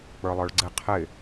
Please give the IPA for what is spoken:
k͡p ə˞ lˠ ə˞ ɭ ɡ͡ǀ ɪ qʰ ɪ

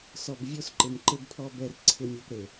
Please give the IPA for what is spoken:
s ɔ˨ b vʲ o˦ s ǃ ɪ˨ m ǃ ɪ˦ b pʰ ɔ˦ b ɛ˦ r ǀʰ ɪ˦ mʲ o˦ p ɾ e˨

